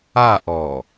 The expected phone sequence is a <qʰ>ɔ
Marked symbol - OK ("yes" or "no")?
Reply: no